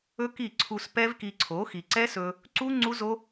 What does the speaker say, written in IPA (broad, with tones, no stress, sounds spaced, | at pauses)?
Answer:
ɵ˦ k i˦˨ ǀʰ u˧ s p ɛ˦ v k i˧ ǀʰ o˨˦ x i˨ ǀ ɛ˦ s ɵ˧ | ǀ u˦ ŋ͡ǀ u˦ z o˦